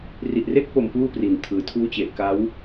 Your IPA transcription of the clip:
r i˨˩ ʔ r e˦˥ k̚ p o˨˩ m p uː˥˩ p r i˨˩ n tʰ ɯː˩˦ tʰ uː˦˥ t͡ɕ e˨˩ ʔ k a˦˥ w

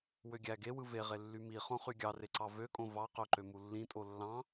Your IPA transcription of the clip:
w ø ɡʲ æ ɡ e w ɯ v e ʁ e lː y m i χ õ χ y ɡʲ ɑ r e ǀ ɑ v ø kʼ õ v ɑ q ø ǃ ø m u lː ĩ tʼ o lː ɑ̃

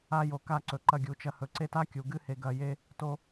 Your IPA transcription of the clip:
a˧ j o˨ k a˦˨ ǀ ɵ˨ ǃ ɐ˧ ɡʲ u˨ t͡ʃ ɐ˧ h ɵ˨ ǀ e˦ t a˦ kʲ u˨ ɡ ɨ˦ h e˧ ɡ ɐ˧ j e˦ | t o˧

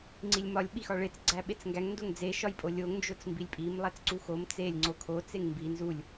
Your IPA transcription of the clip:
ŋ͡ǀ i lʲ m ɒ lʲ ɓ i x ɒ ɭ e t͡s ɡ͡ǀ æ ɓ e t͡s ŋ ɡ æ ŋ n d o ŋ d͡z e ʃ ɒ j pʼ o lʲ o ŋ n d͡ʒ o t͡s m b i lʲ pʼ i m lˠ æ t͡s ǀ u x o m t͡s e lʲ ŋ͡ǀ o kʰ o t͡s e ŋ m b i n z u lʲ

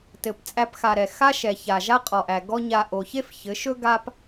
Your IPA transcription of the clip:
t ɘ˨ p t͡sʼ æ˧ p x a˨ ɾ ɛ˨ x a˦ ʃ ɛ˨ ç a˨ ʒ a˦ qʼ ɔ˨ ʔ æ˨ ɡ ɔ˦ ɲ a˧ ʔ o˨ ç e˦ f ç ɘ˨˦ ʃ ɵ˦ ɡ a˦ p

